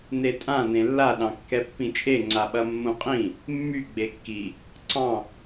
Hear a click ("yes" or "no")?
yes